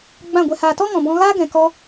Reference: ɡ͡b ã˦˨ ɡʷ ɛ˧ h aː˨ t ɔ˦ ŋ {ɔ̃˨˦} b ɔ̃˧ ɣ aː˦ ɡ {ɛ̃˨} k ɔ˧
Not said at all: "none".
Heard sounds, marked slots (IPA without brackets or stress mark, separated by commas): ɔ̃˨, ɛ̃˨